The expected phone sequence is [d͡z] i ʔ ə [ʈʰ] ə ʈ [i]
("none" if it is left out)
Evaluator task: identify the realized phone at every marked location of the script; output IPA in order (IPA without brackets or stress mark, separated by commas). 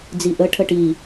d͡z, ʈʰ, i